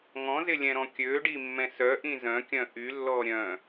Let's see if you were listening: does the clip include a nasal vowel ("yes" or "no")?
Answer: yes